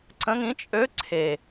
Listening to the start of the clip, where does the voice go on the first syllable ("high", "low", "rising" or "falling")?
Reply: rising